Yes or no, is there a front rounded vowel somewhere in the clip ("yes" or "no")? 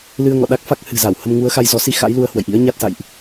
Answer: no